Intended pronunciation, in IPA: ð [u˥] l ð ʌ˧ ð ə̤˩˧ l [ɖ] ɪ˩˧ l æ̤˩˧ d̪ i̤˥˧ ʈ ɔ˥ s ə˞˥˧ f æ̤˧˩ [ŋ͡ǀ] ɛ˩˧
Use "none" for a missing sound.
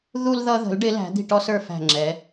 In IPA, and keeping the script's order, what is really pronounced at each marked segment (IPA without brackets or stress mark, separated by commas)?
u˧, ɖ, ŋ͡ǁ